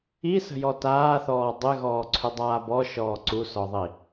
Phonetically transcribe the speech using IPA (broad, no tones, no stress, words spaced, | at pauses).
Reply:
isə̤jɔ taːθɔː dˤɪɣɔːǀʰʏdˤaː bɔʃɔː ǀusɔðˤi